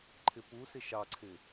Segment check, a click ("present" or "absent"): present